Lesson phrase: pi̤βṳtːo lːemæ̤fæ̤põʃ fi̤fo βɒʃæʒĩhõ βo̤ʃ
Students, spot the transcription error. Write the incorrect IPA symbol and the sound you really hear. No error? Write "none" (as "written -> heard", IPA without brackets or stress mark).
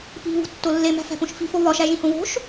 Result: none